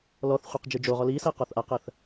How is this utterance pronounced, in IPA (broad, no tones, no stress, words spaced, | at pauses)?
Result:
lɔθχʷiq d͡ʒɨd͡ʒoʁɔ lisɜ qɔθʔaqɜθ